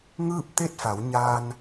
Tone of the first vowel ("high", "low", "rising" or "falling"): falling